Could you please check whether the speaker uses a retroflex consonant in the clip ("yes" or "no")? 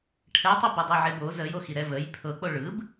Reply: yes